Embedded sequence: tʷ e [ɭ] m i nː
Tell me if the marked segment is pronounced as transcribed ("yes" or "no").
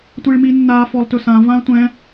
yes